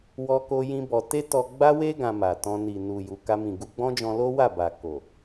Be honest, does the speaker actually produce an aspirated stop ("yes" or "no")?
no